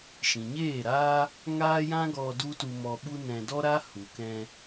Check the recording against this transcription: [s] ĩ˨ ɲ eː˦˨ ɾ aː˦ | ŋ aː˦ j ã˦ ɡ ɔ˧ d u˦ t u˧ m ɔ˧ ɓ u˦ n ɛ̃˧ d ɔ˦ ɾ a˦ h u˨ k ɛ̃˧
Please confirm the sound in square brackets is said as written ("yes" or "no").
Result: no